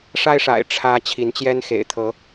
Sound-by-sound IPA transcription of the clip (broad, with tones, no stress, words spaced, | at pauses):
ʂa˦ɪ̯ʂa̰˨˩ɪ̯ ʈ͡ʂʰä˦ t͡ɕʰi˨˦nt͡ɕjɛ˦n xḛ˨˩ɪ̯t̪ʰɤ˨˦